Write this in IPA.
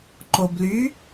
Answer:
ǃ o b l y

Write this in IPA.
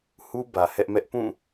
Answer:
h u˦ b ä˨ h ɛ˦ ʔ m ɛ˦ ʔ p ũ˦˨

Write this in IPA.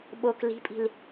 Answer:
ɓ o k l i̤ pʼ i̤ l

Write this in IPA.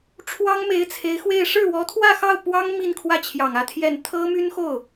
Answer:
ʈ͡ʂʰ w ɑ˥ ŋ m e˧˥ ɪ̯ t͡sʰ e˧˥ ɪ̯ x w e˥˧ ɪ̯ ʂ ɻ̩˥˩ w ɔ˧˥ t̪ʰ w ä˥˧ x ɑ˥˩ ʊ̯ p w ɑ˥ ŋ m i˥˧ n kʰ w ä˥˩ t͡ɕʰ j ɑ˨˩ ŋ ä˥˧ t̪ʰ j ɛ˥˩ n t̪ʰ ɤ˥ m y˥ n x o˥˩ ʊ̯

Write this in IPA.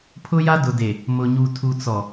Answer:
pʰ ʊ˦ j a˦ d ʊ˨ d e˨ | m ʊ˨ ɲ u˨ tʰ u˨ t͡s ɔ˨

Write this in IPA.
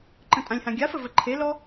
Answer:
ǃ ə̃ tʼ ã lʲ h ã ɡʲ a f ə v ə ǃʰ e l ɔ

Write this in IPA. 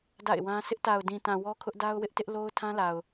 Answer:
d a̰˦˨ ɪ̯ w ã˦ sʰ ɪ˦ ʔ t a˨ ʊ̯ d ĩ˨ t ã˨ w ɔ˦ kʰ ʊ˦ ʔ d a˦ ʊ̯ w ɪ˦ ʔ t ɪ˦ ʔ l o˦ ʊ̯ tʰ ã˦ l a˨ ʊ̯

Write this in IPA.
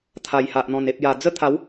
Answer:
t̪ʰ a˨˩ j h a˨ ʔ n̪ ɔ̃˨˩ n e˨ p̚ j a˨˩ d͡z ə˥˧ t̪ʰ a˨˦ w

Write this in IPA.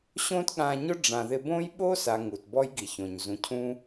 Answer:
ɕ õ˦ t ɠ ã˧ ɲ ʊ˦ ɖ͡ʐ ã˧ ð ɪ˦ b õ˦ j ɓ o˦ s a˨ ŋ u˨ t b ɔ˦ j ɡ i˨ ç õ˨ ɲ z ũ˨ cʰ ũ˦

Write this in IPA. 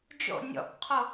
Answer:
d͡ʒ o̰ nʲ ɔ̰ k qʰ o

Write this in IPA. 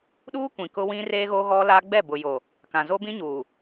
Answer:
ɗ uː˦ kʷ ĩ˨ k ʊ˦ w ĩ˦ r e˦ ɣ o˦ ɣ ɔ˦ l a˦ ɡ͡b ɛ˦˨ b ʊ˨ j o˨ | k ã˨ z o˦ b ĩ˦ ɲ uː˨

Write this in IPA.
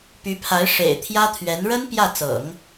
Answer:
p y˧˥ pʰ a˧˥ ɪ̯ ʂ ḛ˨˩ ɪ̯ t̪ʰ j ä˥ t̪ʰ ɥ ɛ˧˥ n ɻ ə˥ n p j ä˥˩ t͡s ɤ̰˨˩˦ ŋ

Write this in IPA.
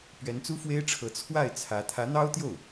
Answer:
p ɥ ɛ˧˥ n t͡s u˥ f w e˥ ɪ̯ ʈ͡ʂʰ ɤ˧˥ t͡sʰ w a˥˩ ɪ̯ t͡sʰ ä˧˥ t̪ʰ ä˧˥ n̪ ɑ˥ ʊ̯ t̪ j o˥˩ ʊ̯

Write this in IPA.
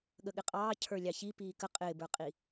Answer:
ɠ ə ɠ ɪ qʼ ɑː cʰ ə˞ lʲ ɑ ç i p iː k ə qʼ ɪː b ə˞ qʼ i

